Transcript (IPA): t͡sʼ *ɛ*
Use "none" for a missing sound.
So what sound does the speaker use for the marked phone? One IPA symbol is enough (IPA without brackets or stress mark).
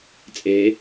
e